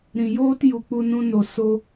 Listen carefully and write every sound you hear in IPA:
ɾĩ˨joː˦t ju˨k͡pu˧nũ˧ no˨so˧

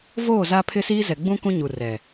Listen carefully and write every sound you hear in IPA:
voː˦˨ za˦pʰɪ˦siː˦zɛ˨ ɡ͡bũ˦ kũ˦ɲu˨rɛ˨

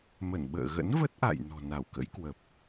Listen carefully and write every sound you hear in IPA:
mə˧˩nɓə̰ː˧˨ɣə̰˧˥n və˦˥t̚ʔa̰˧˨j nɔ̤˨˩na˧˩wkə̰˧˥jkwə˨˩p̚

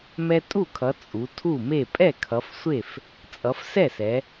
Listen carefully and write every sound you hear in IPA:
mɛ˦tʼu˥˨kʰʌ˨˦ t͡sʼu˨˦tʰu˥˨me˥˨ pʼɛ˥˨kʰʌ˨˦fsʷe˥˨f | t͡sʼʌ˨˦fsɛ˥˨sɛ˨˦

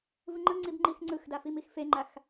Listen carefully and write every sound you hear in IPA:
vɯŋ͡ǃɯŋ͡ǀib ŋ͡ǃixŋ͡ǀɯxda fimixfeŋ͡ǃax

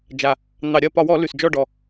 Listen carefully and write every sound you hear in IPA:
d͡ʒa˨˩ | n̪ɑ˧˩˧ɾʲɐ˥˨ pɒ˧˩˧wɔ˧˩˧ lʉ˨˩sd͡ʒɔ˥˨ɖɔ˨˩

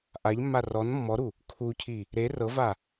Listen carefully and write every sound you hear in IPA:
ʔaʎmːa rɔn mːɔɾu | kʰucʰi | ɾe rɤva

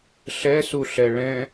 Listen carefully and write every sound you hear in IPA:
ɬɛsuɬɛ ɭɛ̃

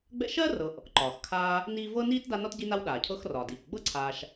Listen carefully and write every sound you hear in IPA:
ɡ͡bɛ̰˦ʃɜ˥rɤ˨ʔ | ǃɒː˩xkʰaː˦ | niː˦ vɤ˥niː˥t da˦nɒ˥tɟi˦na˦w ɗaː˩cʰɤ˦xrɒː˩diː˩k ɡ͡bɤ˥ǀʰaː˨ʃ

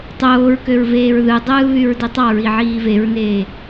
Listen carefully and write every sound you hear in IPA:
tˤoːɹkøɹ veːɹðɯdˤɯː βyɹditˤɑɹi ʕiːveɹneː

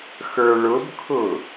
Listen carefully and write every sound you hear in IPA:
xə˞ɭʊbkʰʊ

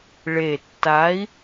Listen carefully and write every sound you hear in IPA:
ɭe˨˩tːa˨˥i̯

